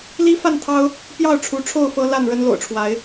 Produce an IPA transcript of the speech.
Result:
li˦fa˥˨nt̪ʰɑ˦ʊ̯ | pjɑ˥˨ʊ̯ʈ͡ʂʰu˨˦ʈ͡ʂʰo˥˨ʊ̯ fɤ˦la˥˨nɻə˦n lo̰˨˩ʊ̯ʈ͡ʂʰwa˨˦ɪ̯

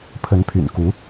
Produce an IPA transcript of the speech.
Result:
pʰə˧˥npʰy̰˨˩nku˧˥

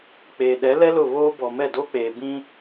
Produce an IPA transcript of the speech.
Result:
k͡peː˨ɗɛ˨˦lɛ˦ lʊ˦˨βoː˦bɔ˨mɛ˦˨ doː˦k͡peː˨bĩ˦

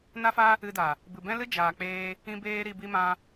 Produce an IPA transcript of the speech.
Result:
na˦fa˦ | ɨ˧da˨ | bɨ˨bɛ̃˦lɨ˦ d͡ʒaː˨k͡peː˧ | ĩ˦beː˦ɾi˧ bi˧mã˧

